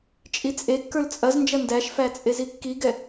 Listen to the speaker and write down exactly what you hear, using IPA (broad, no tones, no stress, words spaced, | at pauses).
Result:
t͡ʃʼit͡sʼekːə˞l t͡sʼɐznd͡ʒɐ ndæʃfæ t͡sʼezikːiɡɛ